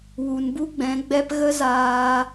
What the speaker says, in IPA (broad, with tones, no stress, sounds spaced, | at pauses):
w u˨ n b u˦ ɡ͡b ɛ̃˨˦ ɡ͡b ɛ˧ p ɣ ə˦ z aː˧